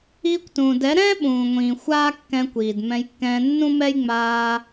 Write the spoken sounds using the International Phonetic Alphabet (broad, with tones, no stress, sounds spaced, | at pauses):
iː˧ kʷ t ũː˨ d ɛ˨˦ ɾ ɛ̃ː˦ ɓ ũː˨ ŋʷ ĩː˨ xʷ aː˦ kː ɛ̃˧ kʷ iː˨ d m ɛ̃˧ j kː ɛ̃ː˧ nː ũ˦ m ɛ˦ j ŋ͡m aː˧